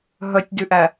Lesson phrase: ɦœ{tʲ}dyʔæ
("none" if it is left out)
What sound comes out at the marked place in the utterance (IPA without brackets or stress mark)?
tʲ